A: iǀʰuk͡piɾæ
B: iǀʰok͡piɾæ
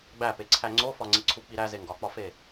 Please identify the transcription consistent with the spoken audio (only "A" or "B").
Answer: A